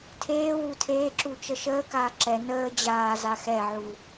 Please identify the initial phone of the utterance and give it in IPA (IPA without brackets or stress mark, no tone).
tʰ